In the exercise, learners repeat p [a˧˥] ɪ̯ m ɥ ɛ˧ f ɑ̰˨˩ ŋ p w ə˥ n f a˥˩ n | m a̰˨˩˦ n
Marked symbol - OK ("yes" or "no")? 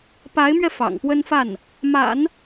yes